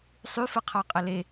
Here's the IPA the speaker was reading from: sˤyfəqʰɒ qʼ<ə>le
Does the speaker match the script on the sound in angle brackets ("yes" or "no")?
yes